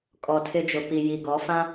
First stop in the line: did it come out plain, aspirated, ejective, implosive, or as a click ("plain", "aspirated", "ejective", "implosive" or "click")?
ejective